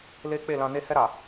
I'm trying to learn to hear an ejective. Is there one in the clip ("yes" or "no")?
no